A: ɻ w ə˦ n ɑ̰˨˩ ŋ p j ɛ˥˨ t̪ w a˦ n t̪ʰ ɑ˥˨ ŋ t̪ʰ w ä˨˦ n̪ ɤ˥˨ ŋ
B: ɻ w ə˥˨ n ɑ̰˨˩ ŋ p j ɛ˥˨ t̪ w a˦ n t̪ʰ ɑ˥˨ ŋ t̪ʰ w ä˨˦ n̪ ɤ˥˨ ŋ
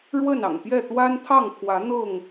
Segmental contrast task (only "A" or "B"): B